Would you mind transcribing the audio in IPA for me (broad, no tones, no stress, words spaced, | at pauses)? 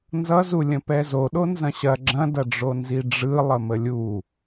nzʌzulʲə̃ pɛzoɗo nzɐ̃ɕɐ ɡ͡ǁɐ̃dɐɖ͡ʐo nziɖ͡ʐɯ lˠəməlʲu